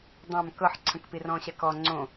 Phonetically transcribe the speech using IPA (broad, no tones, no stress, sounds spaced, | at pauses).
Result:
dˤ ã m k ɤ ħ ǀʰ ə̃ k p i r ɔ̃ ɕ ɛ k ɔ ŋ͡ǀ õ